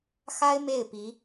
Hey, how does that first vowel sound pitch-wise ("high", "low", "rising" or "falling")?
high